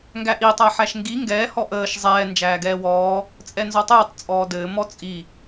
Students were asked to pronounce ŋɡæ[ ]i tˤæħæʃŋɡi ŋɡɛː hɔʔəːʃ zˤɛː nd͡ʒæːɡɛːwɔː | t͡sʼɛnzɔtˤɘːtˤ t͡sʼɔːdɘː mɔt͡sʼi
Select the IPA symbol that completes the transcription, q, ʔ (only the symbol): ʔ